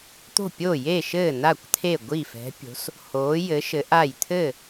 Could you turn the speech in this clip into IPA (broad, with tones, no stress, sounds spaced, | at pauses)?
t̪ o̤˥˩ pʲ o˥˩ j e˥˩ ʃ ɘː˥˩ n a˥˩ kʷ t̪ʰ e˥˩ ɡʷ i˥˩ f ɛ̤˨˥ pʲ o̤˨˥ s | h oː˨˥ j ɘ˨˥ ʃ ɘ˨˥ ʔ a˥˩ j t̪ʰ ɘː˥˩